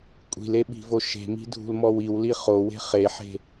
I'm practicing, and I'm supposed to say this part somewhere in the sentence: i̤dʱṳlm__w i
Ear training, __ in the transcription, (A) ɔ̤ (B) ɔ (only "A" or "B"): B